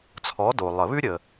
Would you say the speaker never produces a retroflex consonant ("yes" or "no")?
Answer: yes